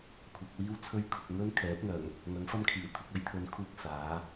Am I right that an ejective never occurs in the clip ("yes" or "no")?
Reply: yes